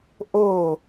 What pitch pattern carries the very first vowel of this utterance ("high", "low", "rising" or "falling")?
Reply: falling